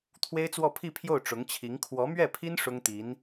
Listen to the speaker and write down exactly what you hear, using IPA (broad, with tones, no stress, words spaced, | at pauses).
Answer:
t̪ʰwe˥ɪ̯t͡swɔ˥˧pʰi˥˧pʰjo˥˩ʊ̯ ʈ͡ʂʊ˧˥ŋt͡ɕʰi˧˥ŋ kʰwɔ˧˥mɥɛ˥˩pʰi˥n ʂʊ˥ŋt̪i˧˥n